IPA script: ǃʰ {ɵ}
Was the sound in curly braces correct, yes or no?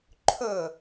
yes